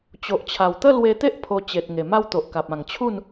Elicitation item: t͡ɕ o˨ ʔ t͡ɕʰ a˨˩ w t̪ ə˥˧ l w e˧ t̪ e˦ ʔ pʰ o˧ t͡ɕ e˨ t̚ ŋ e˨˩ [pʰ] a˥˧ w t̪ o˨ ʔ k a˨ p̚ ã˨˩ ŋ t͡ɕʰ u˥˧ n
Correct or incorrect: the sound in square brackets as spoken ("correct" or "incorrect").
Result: incorrect